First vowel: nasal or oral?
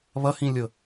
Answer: oral